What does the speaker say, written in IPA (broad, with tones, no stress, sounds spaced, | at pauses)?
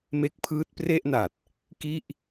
m e˦˥ k̚ pʰ ɯː˦˥ t̚ p r e˥˩ ʔ n a˨˩ t̚ | k i˥˩ ʔ